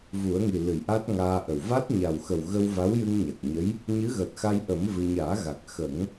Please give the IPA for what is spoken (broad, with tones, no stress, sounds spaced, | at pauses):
v u˨˩˦ ə̯ ŋ i˨˩ l ɨ˨˩˨ j ʔ a˦˥ t̚ ŋ aː˧ ʔ ə˨˩ w v a˦˥ t̚ ɲ a˨˩ w x ə˨˩ w ɣ ə˧ w v a˧˥ w j ɨ˧ ŋ ɲ a˨˩ k̚ ɲ ə˧˥ j | ɲ ɨ˧˥ ɣ əː˨˩ t̚ x a˧ j ʔ ə˨˩˦ m v ɨ˧ ɲ aː˨˩˦ ɣ a˨˩ k̚ x ə˨˩˦ ŋ